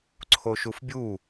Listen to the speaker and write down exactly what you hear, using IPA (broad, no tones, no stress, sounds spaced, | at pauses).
ǀʰ o ʃ u f bʲ u